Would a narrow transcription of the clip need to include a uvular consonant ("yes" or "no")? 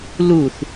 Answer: no